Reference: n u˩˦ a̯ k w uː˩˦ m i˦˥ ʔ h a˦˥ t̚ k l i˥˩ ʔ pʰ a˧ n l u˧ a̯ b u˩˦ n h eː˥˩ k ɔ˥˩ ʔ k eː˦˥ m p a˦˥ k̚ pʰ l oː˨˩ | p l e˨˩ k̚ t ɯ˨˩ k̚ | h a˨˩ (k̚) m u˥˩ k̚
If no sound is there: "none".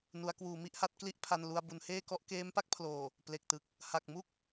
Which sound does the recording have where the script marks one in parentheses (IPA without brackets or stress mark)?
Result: k̚